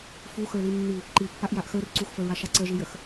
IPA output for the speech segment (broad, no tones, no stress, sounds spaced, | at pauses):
f u x ə˞ l i nː i | ǃ i pː a ʔ j a ʔ x ə˞ r ǀ u x f ə ɹ a ʃ a ǀ ə ʒ i j ə x